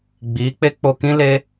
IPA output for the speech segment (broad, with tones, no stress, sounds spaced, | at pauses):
ɡ͡b iː˨˦ k͡p e˦ k͡p o˧ k ĩ˦ l e˦